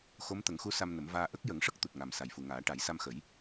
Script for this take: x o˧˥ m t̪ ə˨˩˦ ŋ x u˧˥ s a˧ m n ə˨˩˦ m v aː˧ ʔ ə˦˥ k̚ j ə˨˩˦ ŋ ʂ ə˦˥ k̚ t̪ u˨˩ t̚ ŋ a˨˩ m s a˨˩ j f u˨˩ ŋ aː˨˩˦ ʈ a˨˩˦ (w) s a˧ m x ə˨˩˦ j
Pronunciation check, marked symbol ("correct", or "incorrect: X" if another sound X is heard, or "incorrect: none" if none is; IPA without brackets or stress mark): incorrect: j